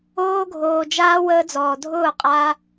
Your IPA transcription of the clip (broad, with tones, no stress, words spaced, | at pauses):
oː˧ɡʱoː˨d͡ʒaː˧ wəː˧d͡zɔː˨dʱʊː˦˨ qʼa˧